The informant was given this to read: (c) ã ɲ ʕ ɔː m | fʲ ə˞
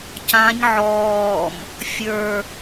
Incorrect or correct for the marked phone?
correct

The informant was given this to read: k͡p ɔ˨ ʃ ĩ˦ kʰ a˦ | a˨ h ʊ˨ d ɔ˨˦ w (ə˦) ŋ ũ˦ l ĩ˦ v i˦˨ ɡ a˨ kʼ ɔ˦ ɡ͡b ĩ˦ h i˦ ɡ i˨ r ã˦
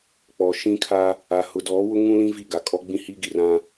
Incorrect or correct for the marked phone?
incorrect: ʊ˦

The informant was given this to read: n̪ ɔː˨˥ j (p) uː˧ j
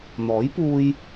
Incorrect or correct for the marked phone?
correct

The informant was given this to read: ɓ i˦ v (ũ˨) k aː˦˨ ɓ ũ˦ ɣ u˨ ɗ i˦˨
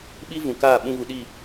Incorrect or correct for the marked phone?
correct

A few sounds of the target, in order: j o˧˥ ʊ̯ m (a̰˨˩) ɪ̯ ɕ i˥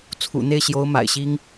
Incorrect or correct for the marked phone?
correct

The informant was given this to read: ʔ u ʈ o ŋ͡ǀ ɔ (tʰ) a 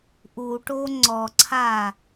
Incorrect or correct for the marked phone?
incorrect: ǀʰ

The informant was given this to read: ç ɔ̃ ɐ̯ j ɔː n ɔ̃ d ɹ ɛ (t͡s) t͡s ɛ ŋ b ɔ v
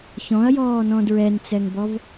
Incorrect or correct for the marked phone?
incorrect: n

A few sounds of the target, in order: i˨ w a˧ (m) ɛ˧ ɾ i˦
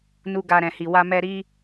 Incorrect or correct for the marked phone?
correct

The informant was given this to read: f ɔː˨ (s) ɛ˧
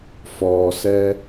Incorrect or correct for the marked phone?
correct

